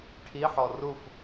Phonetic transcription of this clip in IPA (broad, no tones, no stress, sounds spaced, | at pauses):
ʈʰ i ħ ɔ r u f